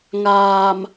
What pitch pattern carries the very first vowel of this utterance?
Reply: low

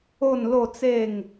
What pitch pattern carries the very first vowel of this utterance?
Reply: falling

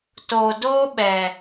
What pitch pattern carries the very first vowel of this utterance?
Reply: low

